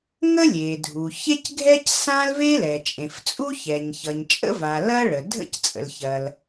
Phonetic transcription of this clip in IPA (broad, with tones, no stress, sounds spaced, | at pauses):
ŋ ə˥ lʲ e˩ dʱ u˩ ç e˥ c ɡʱ ɛ˥ c s ã˥ l v e˥ l ɛ˩ t͡ʃʼ ẽ˩ f t͡sʼ u˥ ç ɛ˩ ɲ ç ʌ˩ ɲ t͡ʃʼ ə̰˥ v a˩ l ɐ˥ ɭ ə˩ dʱ ə̰˥ c t͡sʼ ə̰˩ l ç ɐ˩ l